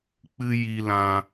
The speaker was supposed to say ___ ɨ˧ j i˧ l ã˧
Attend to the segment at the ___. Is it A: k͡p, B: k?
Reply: A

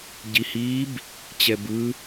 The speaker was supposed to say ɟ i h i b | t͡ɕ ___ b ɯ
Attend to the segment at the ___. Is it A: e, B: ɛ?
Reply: B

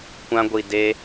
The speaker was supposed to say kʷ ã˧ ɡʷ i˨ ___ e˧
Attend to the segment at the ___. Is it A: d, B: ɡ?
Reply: A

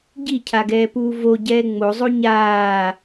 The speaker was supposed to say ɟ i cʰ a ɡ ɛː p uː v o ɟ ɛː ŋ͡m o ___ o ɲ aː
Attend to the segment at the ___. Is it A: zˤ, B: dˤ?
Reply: A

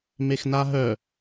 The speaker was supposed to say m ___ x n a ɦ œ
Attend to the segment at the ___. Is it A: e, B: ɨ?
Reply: A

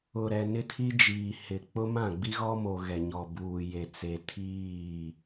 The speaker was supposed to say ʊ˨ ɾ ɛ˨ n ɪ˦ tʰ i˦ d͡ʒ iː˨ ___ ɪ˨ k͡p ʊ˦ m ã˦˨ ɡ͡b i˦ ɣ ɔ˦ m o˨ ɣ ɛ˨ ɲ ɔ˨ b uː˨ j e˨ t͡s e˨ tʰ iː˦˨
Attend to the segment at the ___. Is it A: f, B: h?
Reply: B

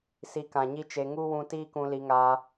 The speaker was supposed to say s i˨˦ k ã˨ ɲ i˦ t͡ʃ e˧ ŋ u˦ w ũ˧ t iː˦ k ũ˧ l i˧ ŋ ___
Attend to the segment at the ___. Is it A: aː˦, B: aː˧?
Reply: B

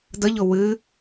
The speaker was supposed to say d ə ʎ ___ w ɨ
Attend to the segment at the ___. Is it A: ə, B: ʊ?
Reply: B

